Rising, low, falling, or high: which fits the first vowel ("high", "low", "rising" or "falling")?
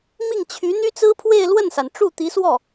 falling